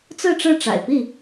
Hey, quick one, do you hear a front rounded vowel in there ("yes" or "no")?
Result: no